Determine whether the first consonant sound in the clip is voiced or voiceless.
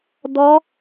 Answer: voiced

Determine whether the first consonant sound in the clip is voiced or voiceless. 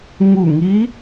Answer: voiced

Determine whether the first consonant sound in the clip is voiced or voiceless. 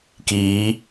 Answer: voiceless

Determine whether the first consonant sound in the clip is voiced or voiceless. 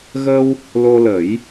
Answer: voiced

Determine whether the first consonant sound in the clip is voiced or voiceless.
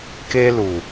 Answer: voiceless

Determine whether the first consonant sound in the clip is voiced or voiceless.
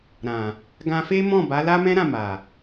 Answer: voiced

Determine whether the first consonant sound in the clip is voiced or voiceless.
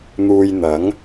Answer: voiced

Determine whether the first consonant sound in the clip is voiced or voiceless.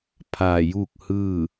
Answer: voiceless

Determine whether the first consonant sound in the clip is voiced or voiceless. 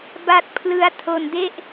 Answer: voiced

